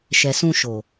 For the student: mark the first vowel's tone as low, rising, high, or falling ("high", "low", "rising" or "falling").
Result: low